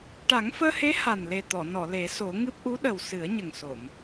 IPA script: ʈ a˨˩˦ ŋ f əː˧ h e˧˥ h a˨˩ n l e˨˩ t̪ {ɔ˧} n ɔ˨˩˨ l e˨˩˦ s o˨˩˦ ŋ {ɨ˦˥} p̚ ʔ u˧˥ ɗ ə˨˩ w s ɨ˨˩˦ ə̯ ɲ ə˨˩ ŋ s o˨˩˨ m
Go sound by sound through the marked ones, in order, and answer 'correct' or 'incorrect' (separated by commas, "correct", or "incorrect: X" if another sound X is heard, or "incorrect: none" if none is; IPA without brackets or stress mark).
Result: incorrect: ɔ˨˩˨, correct